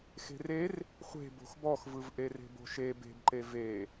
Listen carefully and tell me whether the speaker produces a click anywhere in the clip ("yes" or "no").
yes